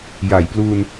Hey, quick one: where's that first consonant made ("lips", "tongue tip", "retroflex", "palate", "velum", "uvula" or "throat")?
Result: palate